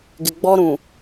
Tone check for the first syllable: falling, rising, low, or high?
low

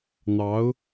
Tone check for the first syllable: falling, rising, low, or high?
rising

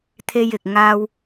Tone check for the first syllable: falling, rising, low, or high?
high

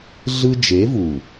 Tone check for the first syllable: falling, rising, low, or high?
high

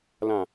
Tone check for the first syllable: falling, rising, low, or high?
low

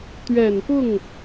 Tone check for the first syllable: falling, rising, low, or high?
low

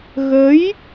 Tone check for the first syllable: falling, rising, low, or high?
rising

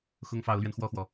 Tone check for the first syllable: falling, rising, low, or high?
high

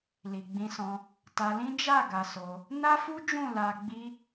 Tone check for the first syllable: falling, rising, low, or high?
low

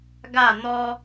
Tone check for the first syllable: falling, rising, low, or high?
falling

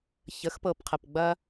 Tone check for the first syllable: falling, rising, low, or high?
rising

